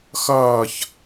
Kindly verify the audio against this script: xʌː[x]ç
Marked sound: incorrect: none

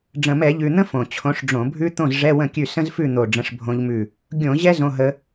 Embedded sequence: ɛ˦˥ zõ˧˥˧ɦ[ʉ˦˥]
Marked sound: incorrect: ə˦˥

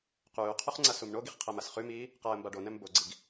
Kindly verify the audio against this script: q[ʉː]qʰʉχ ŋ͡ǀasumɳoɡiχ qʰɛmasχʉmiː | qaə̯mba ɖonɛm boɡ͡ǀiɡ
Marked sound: correct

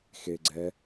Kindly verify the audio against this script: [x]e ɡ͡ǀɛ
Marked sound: correct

